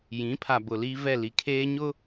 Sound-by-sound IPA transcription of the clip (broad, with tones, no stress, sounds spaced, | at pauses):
j ĩ˨˦ pʰ a˨ b ʊ˨ l iː˦ v ɛ˦˨ l i˨ kʰ eː˦ ɲ ʊ˦